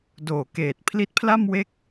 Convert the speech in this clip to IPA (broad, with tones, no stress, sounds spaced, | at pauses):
d oː˨˩ k eː˨˩ t̚ pʰ l i˦˥ t̚ pʰ l a˥˩ m w e˥˩ k̚